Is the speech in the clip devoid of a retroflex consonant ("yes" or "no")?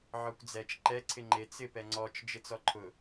yes